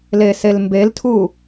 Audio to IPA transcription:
leselmbeltʰu

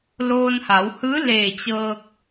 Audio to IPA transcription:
loː˧nha˩˧w hɯː˧˥ leː˧˩t͡ɕɤː˧k̚

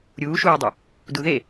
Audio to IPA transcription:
ɾʲuːʃuːdˤu | duðe

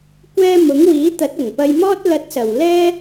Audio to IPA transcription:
kʷɛː˧ mʊ˨˥ŋwiː˨˥ t̪ɐ˨˥t̚ɐ˨˩ŋpɐ˧jmɔː˥t̚ lɐ˧t̚sɐ˨˩w lɛː˥

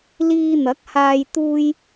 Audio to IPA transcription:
liː˧n̪ɐ˨˥k̚haː˧j t̪uː˥j

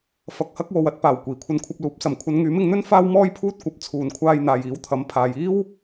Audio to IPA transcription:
fɐ˧k̚hɐ˥k̚wo˨˧w ɐ˨˥t̚ paː˨˩w kʷiː˨˩kʷʰɐ˧nkʷʰɐ˧p̚luː˨˥p̚ sɐ˨˩mkʷʰɐ˨˧n ŋyː˨˥mɪ˧ŋn̪ɵ˥n faː˥wmɔː˥jpʰuː˥t̚ kʷɐ˨p̚ t͡sʰuː˨nkʷʰaː˧jn̪aː˨j iː˨˥wt̪ʰɐ˨˥m pʰaː˨jiː˥w

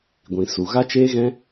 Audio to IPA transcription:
ɡʷĩ˧su˧ ɣa˦t͡ʃeː˦ɣɛ̃˦

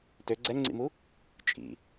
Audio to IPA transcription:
tø ɡ͡ǀɛŋŋ͡ǀḭmu | t͡ʃʼḭ

